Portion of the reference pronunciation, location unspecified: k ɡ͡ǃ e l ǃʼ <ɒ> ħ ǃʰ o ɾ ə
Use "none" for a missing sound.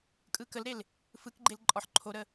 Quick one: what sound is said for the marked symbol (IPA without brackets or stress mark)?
ɒ